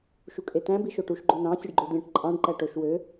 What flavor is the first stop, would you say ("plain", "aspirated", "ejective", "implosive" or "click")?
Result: ejective